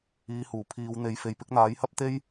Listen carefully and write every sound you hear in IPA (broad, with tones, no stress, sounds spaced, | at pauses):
iː˨˧ h uː˨˩ pʰ iː˨˧ w n̪ e˨˧ j f e˨ j p ɪ˨˥ k̚ n̪ aː˨˥ j h ɐ˥ p̚ t̪ e˥ j